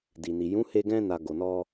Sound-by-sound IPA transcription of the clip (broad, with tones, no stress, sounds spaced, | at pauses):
d i˨ n i˨ j ũ˨˦ h e˧ ɡ ɛ̃˧ n a˨ ɡ o˨ n ɔ˧